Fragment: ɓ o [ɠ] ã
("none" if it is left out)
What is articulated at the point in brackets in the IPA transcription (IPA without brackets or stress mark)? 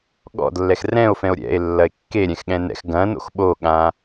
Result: ɠ